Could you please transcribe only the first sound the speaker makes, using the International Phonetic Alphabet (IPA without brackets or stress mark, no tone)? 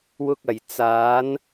w